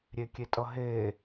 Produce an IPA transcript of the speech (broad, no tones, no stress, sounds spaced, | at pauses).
ɾʲ e kʲ e tʼ ʌ ɦ e